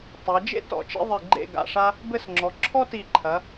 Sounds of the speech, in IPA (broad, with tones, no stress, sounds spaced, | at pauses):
tˤ ɛ˩˧ d͡ʒ ḛ˥ t ɔ̰˧˩ t͡ʃ ḭ˧ ðˤ i˧˩ ɡ͡ǃ ḛ˥˧ ɡ a̰˧˩ ʂ a˥ | b ɘ˥˧ s ŋ͡ǁ ɔ˩˧ ǁʰ ɔ˥ t i˧˩ ǃʰ ɐ˩˧